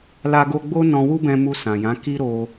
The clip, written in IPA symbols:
la˧ɡo˧ɡ͡bo˦ nɔ̃˧wu˦bɛ̃˧mu˧ sã˨jã˨˦ ki˦ɾo˧

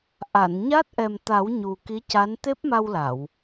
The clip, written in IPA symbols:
ʔa˨˩˨nɲa˦˥t̚ ʔɛ˨˩mt̪a˨˩˦w ɲu˨˩ki˧˥ca˧˥n t̪e˦˥p̚ma˧wla˨˩˨w

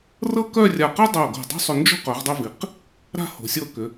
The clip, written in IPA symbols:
rɤ˥kœ˥˧ rʲa˧˩qɤ˥dˤo˧˩ ɡo̤˧˩dˤo̤˥sˤʏ˧nd͡ʒo̤˥ qœ˩˧ʁdˤʏ˧vi˩˧q | ɾa̤˥˧ho̤˩˧sʲɤ˧kʏ˩˧

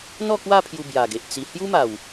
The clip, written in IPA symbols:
n̪ɔ˥˧kwa˥˧ pʰju˧bja˨˩ɡe˨ʔ t͡si˧ hju˦ma˨˩w

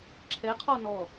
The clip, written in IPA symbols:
ǁʰɛ qʰɔ nɔ

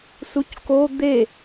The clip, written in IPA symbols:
sucko d̪e

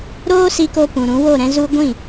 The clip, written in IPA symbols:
ɾoː˦si˧ ko˧pũ˨ɾũ˨˦ wo˦˨ɾɛ̃˧ zu˦ ɡʷĩ˦˨

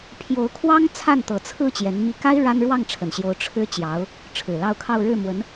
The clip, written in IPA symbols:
pʰjo˧˥ʊ̯kʰwɑ˥ŋt͡sʰa˥˩n t̪ɤ˨˩t͡sʰɹ̩˥˩ t͡ɕjɛ˧˥nmi˥ ka˥ɪ̯ ɻa˥n ɻwɑ˥˩ŋʈ͡ʂʰə˨˩nɕjo˧˥ʊ̯ ʈ͡ʂʰɻ̩˥ t͡ɕjɑ˧˥ʊ̯ | ʈ͡ʂʰɻ̩˨˩lɑ˥˧ʊ̯kʰɑ˥˧ʊ̯ ɻɻ̩˥˩mwə˧˥n

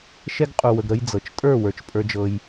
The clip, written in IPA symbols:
ʃɛ˧ɡ qʼu˨wə˨ɡ ɾə˧jd͡zɤ˨t͡ʃ tʼə˞˦˨wə˞˨t͡ʃ pʼə˞˧d͡ʒɤ˧j

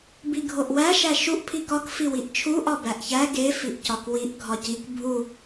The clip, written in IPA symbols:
biɡʱoʔwæ ʃæʃuʔ pʰikɒk fiwiʔt͡ʃʰu ʔɒbæʔçæ ɡe fiʔcɒkwiʔ ɡʱɒcik bʱu

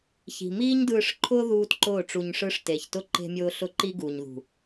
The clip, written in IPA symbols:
çi̤˨miː˦ɲdɯː˧ʂ ǃʰʊː˦ ðuː˦tǃʊː˦˨ʈ͡ʂu˧ɲʂɯ˦ʂ te˨çtʊ˦ ǃe̤˧mʲʊː˧ ɬʊ˦ǃi˦ɡu˨ɲðṳ˨

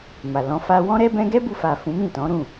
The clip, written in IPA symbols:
ma˨lɔ̃˨˦ fa˧wɔ̃˦ɾɛ˦ bɛ̃˦ ɡɛ˦bu˧fa˨ fũ˨˦mĩ˦˨tɔ̃˨˦ɾũ˦˨

